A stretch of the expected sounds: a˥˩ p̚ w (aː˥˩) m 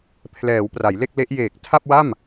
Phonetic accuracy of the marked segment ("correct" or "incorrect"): incorrect